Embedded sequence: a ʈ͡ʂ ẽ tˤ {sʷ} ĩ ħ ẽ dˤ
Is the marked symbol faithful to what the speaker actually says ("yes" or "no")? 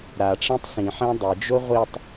no